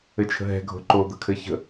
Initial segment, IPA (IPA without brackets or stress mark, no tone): ɘ